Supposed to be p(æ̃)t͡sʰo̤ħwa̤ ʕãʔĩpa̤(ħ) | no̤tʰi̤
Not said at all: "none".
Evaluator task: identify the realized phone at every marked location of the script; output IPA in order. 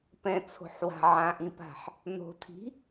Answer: ɛ̃, ħ

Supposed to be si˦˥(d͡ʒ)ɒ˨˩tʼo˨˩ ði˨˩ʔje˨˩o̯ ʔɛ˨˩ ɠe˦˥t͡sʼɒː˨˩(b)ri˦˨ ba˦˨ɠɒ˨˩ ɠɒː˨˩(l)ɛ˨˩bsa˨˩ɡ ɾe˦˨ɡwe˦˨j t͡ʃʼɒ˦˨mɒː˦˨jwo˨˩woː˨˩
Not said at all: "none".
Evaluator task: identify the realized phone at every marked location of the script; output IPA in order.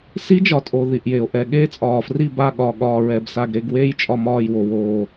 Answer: d͡ʒ, f, ɹ

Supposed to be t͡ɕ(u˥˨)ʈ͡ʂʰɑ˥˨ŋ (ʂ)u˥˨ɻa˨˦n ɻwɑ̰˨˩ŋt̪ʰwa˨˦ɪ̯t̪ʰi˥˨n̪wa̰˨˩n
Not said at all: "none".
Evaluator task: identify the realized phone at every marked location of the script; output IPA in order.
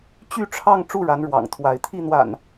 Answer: y˥˨, ʈ͡ʂ

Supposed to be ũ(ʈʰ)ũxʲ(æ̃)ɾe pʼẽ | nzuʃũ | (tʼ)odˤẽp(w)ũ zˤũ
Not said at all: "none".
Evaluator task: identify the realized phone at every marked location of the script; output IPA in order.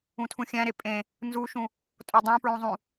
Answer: tʰ, æ̃, tʼ, ɹ

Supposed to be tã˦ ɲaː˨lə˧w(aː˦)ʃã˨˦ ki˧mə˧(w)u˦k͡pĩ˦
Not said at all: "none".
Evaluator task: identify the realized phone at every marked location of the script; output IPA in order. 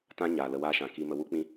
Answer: aː˦, w

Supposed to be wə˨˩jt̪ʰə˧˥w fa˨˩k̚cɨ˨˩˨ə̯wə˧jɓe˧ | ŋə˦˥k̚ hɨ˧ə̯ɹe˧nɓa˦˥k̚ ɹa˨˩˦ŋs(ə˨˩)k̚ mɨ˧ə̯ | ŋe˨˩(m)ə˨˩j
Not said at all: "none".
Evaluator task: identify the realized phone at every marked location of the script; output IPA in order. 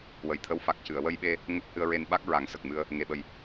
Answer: ə˨˩, ɓ

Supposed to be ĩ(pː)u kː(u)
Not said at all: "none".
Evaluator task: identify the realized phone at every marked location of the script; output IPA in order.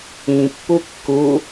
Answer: pː, u

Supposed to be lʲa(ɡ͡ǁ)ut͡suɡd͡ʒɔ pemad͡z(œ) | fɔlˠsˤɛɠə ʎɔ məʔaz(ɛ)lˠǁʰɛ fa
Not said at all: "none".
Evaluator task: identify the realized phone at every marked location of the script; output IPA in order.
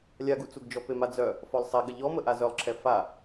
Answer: ɡ, œ, œ

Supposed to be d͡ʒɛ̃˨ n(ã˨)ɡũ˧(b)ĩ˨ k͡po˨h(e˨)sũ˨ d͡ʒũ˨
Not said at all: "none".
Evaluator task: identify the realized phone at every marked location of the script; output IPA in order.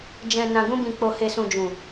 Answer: ã˨, b, e˨

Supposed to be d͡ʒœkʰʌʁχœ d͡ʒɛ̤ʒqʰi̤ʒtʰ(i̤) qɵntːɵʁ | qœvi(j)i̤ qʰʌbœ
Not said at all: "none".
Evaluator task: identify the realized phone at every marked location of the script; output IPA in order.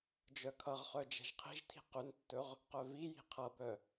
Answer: i̤, j

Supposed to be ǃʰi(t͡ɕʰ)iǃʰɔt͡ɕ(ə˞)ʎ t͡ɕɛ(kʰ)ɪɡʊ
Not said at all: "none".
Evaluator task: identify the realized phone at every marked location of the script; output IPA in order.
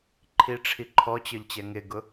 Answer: ʈ͡ʂʰ, ə˞, ŋ

